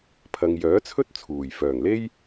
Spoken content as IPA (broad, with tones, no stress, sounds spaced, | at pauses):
pʰ ɐ˨ ŋ j œː˨˥ t͡sʰ ɵ˥ t̚ t͡sʰ uː˨˩ j f œː˨˩ ŋ l e˥ j